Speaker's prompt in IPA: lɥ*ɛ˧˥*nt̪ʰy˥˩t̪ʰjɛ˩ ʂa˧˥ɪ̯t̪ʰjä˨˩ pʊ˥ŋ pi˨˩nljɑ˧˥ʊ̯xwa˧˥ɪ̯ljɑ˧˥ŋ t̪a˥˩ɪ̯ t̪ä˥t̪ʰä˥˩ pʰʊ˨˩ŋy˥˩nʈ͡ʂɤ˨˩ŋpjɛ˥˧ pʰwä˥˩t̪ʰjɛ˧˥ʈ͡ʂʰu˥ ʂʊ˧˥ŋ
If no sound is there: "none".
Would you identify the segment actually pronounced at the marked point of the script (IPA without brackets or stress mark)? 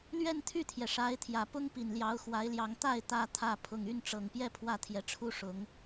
ɛ˥˧